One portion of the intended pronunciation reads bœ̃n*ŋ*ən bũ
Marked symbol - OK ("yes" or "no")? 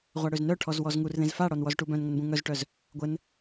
yes